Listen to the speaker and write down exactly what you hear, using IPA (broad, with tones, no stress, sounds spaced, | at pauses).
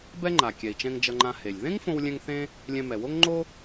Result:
b ɛ˥ ŋ͡ǃ a˩ kʲ ɛ˩ i̯ t͡ʃ ɛ̃˧ ŋ d͡ʒ ʌ˧ ŋ͡ǃ ã˧ h e˩ lʲ ð ẽ˥ ŋ f õ˧ w lʲ ɛ̃˧ ŋ θ ẽ˥ | lʲ ɛ̃˧ m ɛ˩ w o˥ ŋ ŋ͡ǃ o˥